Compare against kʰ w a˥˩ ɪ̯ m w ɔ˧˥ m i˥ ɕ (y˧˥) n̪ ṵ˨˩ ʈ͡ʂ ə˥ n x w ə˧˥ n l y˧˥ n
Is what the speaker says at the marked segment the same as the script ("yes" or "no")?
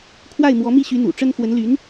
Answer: yes